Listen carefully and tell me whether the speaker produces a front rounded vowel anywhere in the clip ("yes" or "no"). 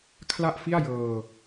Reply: no